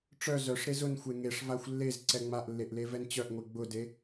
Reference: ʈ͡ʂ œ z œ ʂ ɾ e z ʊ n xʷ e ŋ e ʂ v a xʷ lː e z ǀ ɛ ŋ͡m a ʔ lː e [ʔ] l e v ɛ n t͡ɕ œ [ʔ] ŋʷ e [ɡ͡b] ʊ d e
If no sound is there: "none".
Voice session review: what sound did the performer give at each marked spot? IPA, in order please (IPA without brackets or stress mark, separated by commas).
ʔ, ʔ, ɡ͡b